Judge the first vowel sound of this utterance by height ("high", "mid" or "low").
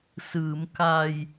high